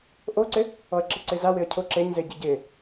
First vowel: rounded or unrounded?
rounded